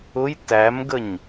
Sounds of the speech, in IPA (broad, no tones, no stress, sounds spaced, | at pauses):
ʊ j t æ m ɡ ə ɲ